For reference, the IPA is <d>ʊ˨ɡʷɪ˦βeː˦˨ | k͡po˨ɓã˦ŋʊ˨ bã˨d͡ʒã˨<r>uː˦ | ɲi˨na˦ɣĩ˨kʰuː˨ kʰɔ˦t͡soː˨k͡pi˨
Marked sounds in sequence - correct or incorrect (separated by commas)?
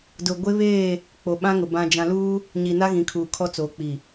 correct, incorrect